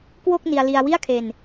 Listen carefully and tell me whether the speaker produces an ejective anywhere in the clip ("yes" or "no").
no